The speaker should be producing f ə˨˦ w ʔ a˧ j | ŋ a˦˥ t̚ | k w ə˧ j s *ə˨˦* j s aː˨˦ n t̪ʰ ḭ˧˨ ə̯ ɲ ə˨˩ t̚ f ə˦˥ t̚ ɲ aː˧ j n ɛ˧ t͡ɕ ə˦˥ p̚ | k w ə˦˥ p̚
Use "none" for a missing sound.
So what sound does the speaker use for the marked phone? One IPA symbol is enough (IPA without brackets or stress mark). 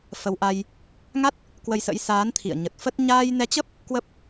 ə̰˧˥